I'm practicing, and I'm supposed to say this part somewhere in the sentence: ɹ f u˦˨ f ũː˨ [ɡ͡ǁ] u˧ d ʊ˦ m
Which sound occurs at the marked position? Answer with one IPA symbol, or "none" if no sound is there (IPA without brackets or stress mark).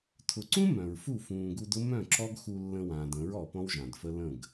ɡ